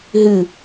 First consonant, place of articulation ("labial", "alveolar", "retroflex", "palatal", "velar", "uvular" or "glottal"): glottal